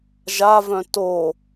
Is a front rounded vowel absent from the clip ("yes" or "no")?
no